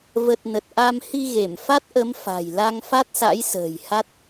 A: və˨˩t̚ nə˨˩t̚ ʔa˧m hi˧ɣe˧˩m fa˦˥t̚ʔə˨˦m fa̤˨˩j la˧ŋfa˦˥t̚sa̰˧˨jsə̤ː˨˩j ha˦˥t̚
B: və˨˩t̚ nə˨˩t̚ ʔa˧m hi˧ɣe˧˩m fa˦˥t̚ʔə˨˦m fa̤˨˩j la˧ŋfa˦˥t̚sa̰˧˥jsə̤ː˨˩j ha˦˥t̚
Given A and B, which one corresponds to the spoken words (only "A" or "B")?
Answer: B